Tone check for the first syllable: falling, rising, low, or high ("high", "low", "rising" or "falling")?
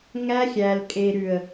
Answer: high